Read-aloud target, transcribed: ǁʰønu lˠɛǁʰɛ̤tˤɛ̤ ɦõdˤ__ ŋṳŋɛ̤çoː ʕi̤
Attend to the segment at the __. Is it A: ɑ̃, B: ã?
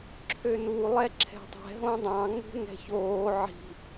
A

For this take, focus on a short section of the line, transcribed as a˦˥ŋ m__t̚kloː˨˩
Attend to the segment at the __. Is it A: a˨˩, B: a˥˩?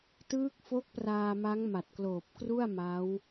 A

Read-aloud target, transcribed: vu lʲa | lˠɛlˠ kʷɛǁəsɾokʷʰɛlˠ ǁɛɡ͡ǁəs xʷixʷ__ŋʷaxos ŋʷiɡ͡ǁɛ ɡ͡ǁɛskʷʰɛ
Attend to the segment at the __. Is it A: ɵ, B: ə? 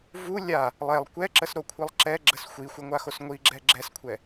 B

